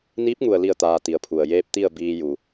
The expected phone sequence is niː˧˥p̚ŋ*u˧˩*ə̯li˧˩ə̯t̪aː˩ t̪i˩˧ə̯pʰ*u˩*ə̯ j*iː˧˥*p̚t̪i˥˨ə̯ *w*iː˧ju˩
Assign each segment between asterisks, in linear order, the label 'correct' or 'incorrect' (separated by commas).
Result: correct, correct, incorrect, incorrect